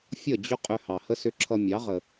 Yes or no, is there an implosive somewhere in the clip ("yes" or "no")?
no